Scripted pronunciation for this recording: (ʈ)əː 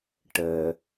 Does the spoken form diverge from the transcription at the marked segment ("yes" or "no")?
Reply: no